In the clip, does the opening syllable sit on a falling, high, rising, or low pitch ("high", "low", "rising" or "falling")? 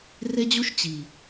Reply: high